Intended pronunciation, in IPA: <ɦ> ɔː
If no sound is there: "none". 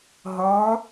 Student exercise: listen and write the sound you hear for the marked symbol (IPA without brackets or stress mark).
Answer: ɦ